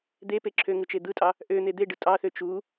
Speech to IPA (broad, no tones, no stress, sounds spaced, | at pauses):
d̪ e p e ǁʰ ø ŋ ɯ t͡ʃ e d̪ ɯ tʼ ɑ | ʔ ø n̪ e d̪ e ɖ ɯ tʼ ɑ θ ø t͡ʃ u